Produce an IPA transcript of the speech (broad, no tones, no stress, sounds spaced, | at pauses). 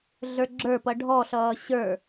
ɮ ə˞ ɡ͡ǁ ə˞ p ʌ ɖʱ ɔ ɬ ʌː ɕ ə˞